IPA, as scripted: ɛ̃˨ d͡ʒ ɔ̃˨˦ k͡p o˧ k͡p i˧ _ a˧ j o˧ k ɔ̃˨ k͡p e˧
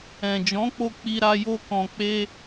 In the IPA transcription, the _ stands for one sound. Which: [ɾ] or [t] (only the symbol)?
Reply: ɾ